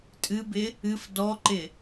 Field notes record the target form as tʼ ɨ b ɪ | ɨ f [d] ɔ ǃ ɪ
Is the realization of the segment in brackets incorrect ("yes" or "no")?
no